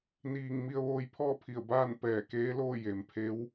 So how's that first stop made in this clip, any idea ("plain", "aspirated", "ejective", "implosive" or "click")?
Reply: aspirated